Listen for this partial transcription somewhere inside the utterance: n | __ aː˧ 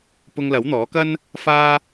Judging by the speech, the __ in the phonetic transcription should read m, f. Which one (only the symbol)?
f